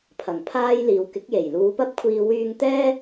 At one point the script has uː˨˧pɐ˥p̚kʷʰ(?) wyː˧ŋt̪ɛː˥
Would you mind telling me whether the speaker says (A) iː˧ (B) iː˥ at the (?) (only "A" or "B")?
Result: A